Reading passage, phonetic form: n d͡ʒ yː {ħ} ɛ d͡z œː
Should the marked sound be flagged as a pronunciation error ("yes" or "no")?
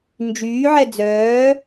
yes